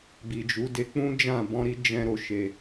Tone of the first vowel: low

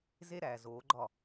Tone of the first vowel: high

